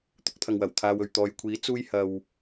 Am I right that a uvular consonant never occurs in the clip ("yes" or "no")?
yes